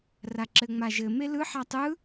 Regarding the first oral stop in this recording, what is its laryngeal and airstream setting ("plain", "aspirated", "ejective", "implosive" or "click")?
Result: click